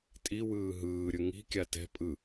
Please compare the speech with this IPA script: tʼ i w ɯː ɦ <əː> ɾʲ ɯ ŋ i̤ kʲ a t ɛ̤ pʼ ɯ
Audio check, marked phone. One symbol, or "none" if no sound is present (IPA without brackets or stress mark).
ɯː